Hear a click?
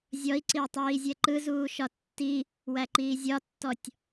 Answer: yes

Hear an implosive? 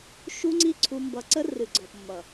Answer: no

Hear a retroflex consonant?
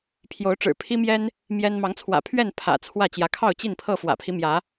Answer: yes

